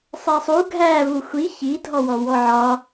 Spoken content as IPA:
sˤɛsˤu ɡʱæ vuxʷi çidʱɔwɔwɔ ʕɒ

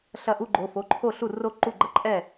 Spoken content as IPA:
ɬɐ˥˩ ʔu˥˧ɡ͡ǃo˩˧˩ fo˩˧˩ǃʰo˥˩ɬu˥˩ ro˥˧ ǃu˥˩ɡ͡ǃɐ˥˧ ǃʼɛ˥˩

